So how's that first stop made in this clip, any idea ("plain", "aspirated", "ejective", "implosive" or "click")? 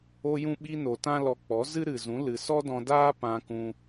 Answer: implosive